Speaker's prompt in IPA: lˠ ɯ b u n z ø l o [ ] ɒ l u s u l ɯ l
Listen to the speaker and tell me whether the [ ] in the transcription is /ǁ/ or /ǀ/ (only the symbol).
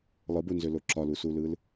ǁ